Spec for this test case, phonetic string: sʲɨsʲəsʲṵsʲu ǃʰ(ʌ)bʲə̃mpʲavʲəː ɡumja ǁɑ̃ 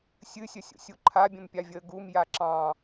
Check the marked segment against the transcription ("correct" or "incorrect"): incorrect